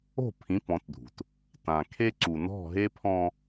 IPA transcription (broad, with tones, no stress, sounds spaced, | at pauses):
o̤˦˨ pʰ ĩ˨˦ p ɔ̃˨˦ t dʱ ṳ˨ t | t ã˨ kʰ e˦ ǀ u˨ n ɔ̤˦˨ ɦ e˦ pʰ ɔ̃˦